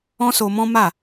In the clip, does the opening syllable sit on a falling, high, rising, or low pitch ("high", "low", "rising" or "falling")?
high